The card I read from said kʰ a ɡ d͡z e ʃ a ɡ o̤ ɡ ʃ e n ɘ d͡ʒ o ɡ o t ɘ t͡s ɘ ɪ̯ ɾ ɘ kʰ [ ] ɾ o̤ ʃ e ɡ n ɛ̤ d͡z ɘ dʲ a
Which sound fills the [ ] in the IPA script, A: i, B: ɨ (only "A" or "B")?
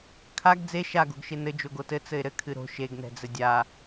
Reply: B